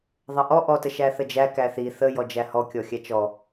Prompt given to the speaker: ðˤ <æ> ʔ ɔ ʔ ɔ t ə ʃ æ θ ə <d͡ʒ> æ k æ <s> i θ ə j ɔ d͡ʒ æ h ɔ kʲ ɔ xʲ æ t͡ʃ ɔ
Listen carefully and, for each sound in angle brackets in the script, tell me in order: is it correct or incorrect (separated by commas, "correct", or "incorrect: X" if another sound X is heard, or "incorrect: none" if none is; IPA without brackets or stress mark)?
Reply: incorrect: ə, correct, incorrect: θ